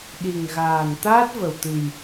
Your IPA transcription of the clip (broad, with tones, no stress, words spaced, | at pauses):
ɗi˨˩ŋɣaː˨˩n t̪aː˦˥t̚və˨˩wt̪ɨ˨˩j